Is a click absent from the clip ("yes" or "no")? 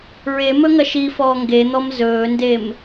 yes